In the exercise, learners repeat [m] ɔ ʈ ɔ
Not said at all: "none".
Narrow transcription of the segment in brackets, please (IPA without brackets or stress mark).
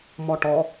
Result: m